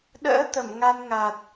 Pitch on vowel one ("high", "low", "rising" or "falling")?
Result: rising